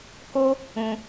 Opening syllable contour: high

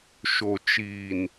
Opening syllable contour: low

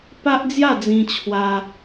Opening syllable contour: high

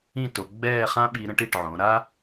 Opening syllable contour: falling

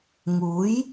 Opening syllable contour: rising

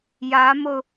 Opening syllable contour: rising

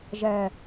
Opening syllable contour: low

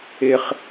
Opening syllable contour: low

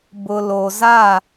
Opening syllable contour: low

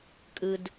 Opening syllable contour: low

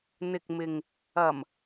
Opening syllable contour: low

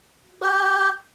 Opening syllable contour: high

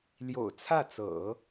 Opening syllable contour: low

